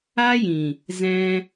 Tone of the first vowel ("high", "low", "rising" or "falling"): high